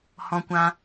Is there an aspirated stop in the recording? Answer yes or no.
no